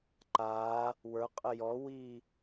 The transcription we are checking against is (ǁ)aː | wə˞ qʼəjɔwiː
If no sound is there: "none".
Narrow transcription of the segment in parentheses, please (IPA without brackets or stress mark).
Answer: ǃ